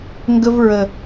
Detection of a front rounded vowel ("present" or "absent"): absent